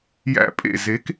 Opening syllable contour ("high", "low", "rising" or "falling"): high